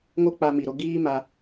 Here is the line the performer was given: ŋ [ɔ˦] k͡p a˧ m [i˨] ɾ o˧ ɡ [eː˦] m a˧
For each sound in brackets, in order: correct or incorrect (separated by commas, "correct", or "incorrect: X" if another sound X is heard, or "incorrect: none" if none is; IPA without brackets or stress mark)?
incorrect: o˦, correct, incorrect: iː˦